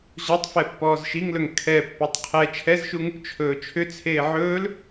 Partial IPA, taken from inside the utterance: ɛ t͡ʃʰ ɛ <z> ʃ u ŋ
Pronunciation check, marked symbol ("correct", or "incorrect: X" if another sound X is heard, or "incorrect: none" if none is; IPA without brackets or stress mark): correct